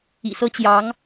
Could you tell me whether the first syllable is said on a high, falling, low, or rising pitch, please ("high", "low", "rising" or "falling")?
low